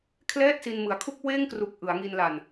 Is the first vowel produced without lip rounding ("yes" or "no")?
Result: yes